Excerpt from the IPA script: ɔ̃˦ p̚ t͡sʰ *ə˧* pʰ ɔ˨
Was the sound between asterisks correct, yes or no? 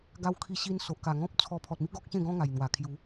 no